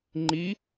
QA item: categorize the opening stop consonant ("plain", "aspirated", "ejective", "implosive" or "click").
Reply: click